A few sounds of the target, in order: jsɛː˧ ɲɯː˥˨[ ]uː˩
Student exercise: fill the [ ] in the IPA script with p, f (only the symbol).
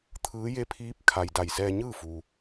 f